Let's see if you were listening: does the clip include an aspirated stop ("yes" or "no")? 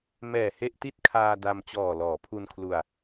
yes